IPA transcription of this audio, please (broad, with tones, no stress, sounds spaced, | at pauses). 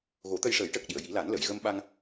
ɣ o˨˩˦ t̪ ə˧ j ʂ əː˨˩˦ j ʈ əː˨˩ k̚ ɗ i˨˩˨ ə̯ j i˨˩˦ l a˨˩˦ n l ə˨˩˨ j ɣ ə˧ m ɓ a˧ ŋ